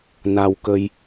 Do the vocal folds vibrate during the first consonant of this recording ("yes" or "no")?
yes